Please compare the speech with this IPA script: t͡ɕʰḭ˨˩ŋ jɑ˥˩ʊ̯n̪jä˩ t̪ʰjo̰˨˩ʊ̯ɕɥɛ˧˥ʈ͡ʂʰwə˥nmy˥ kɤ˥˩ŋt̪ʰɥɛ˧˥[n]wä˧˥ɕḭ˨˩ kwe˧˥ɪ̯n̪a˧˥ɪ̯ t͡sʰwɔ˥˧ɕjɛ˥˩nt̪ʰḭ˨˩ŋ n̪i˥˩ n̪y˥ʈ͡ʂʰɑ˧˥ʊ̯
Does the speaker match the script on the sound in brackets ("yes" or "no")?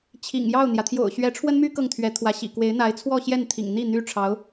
no